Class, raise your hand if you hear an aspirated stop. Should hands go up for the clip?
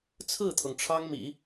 yes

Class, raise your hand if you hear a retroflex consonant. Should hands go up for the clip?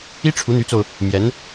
yes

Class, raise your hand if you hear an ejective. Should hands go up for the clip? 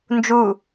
no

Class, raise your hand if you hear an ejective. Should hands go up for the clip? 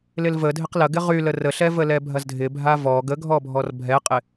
yes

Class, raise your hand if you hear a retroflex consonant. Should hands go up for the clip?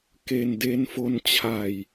no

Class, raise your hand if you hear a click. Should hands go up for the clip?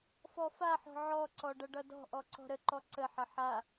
yes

